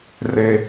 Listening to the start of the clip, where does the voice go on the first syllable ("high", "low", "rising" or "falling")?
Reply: low